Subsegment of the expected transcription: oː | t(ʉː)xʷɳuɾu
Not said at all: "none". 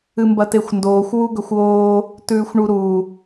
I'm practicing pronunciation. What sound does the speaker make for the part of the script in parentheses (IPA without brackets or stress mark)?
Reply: ʉː